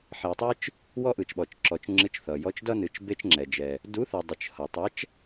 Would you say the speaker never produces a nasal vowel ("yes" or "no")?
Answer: yes